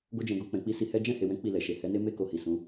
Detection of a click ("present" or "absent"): absent